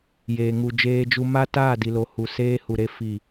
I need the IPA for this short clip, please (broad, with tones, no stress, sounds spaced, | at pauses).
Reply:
j eː˨ ŋ u˨ d͡ʒ eː˦ d͡ʒ u˦ m a˦ t aː˦˨ d i˨ l o˨ h u˨ s eː˦ h u˨ ɾ e˦ f i˦˨